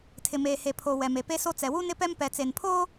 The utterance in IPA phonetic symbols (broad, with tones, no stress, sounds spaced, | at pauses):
tʰ ɪ˨ m eː˨ h e˨ pʰ o˨ w ɛ˨ m e˨ p e˦ s o˦ t͡s ɛ˨ w u˦ n ɪ˦ p ɛ˦ m p ɛ˨ t͡s e˨ n pʰ o˦